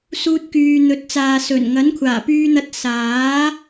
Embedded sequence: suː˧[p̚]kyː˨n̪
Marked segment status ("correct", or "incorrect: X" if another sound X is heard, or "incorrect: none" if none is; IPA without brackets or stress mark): incorrect: t̚